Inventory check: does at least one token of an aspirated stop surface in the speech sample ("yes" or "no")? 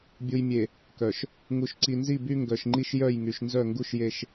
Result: no